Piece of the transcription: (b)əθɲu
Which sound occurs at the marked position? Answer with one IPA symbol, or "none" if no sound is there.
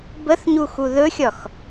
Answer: b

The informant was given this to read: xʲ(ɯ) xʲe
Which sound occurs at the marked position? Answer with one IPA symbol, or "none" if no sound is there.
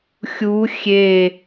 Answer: u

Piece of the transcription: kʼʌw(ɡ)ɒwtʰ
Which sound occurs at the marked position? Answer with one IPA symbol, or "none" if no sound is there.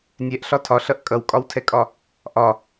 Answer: kʼ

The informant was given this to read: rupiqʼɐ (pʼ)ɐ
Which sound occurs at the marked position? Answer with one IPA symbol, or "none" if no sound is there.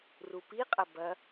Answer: b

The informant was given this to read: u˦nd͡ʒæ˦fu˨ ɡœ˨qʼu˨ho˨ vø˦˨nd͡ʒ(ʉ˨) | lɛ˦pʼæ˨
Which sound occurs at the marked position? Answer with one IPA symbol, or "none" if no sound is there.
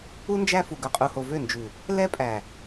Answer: ʉ˨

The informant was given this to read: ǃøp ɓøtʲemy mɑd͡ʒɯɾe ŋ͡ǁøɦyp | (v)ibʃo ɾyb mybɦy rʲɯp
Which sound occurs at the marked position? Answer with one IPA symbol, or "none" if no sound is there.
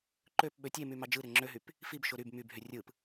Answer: f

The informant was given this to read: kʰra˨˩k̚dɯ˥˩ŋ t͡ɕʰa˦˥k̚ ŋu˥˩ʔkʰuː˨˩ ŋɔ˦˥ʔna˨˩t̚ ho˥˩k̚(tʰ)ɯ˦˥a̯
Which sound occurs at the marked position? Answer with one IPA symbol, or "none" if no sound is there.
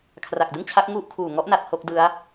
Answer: d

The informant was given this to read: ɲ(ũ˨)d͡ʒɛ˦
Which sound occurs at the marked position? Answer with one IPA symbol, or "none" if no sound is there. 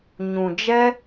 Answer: ũ˨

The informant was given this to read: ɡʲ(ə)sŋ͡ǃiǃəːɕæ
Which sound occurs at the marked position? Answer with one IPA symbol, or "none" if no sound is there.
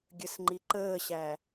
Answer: ə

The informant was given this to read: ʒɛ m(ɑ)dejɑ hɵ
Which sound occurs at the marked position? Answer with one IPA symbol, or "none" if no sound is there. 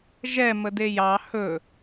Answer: ə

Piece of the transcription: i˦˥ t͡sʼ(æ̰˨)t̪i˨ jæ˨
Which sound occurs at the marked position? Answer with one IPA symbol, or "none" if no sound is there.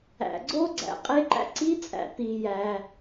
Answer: æ̰˨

